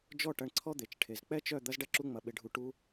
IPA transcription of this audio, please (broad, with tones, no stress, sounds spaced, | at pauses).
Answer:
d͡ʒ ɔ˦˨ ʈ ɐ˧ ɳ ǀʰ ɔ˦ d̪ e˨ t͡ʃ ʈʰ e˨ z k͡p ɛ˦ t͡ʃ œ˦˨ d̪ ɐ˦ z ɖ ɐ˦ ǁ u˦ ŋ͡m ɐ˧ ɓ ɪ˧ ɖʱ u˧ ʈ u˦